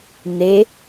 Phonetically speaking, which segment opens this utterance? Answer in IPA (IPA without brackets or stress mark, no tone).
n